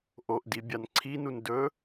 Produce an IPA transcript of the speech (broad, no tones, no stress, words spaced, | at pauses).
ʔoʔdi bʲanǀʰinun dɵ